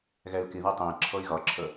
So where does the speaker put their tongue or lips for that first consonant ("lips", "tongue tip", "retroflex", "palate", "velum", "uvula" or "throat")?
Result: velum